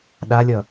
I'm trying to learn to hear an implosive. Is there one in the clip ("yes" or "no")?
yes